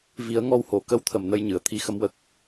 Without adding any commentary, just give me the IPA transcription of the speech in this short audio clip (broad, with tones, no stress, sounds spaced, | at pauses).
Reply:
v i˨˩˦ ə̯ ŋ ɔ˧ w h o˨˩˨ k ə˧˥ w t̪ʰ ə˨˩ m n ə˧ j ɲ ɨ˨˩˨ ə̯ t̪ʰ i˨˩ x ə˨˩˦ m w ə˨˩ k̚